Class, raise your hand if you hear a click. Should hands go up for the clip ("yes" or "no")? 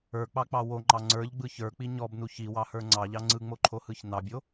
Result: yes